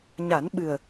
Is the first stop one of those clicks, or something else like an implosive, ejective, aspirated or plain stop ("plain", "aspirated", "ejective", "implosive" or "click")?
implosive